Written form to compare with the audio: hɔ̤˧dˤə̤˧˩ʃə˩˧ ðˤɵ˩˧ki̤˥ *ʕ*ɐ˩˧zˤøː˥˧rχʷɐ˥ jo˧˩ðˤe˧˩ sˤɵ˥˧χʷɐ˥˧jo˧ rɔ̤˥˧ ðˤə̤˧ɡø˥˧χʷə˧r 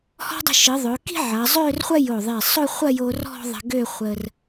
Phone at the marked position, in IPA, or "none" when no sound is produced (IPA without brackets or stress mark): ʕ